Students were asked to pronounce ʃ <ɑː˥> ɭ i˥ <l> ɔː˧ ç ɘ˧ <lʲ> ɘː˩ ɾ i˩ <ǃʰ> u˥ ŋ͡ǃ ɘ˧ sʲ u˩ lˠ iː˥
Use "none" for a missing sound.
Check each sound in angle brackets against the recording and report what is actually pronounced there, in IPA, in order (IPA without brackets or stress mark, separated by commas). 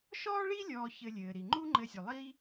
ɔː˥, lʲ, lʲ, ŋ͡ǃ